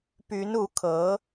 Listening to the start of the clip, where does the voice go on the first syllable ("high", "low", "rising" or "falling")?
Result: rising